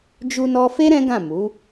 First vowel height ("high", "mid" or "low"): high